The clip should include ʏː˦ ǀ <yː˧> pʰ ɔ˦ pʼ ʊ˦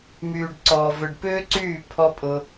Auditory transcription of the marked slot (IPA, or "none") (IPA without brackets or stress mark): yː˦˨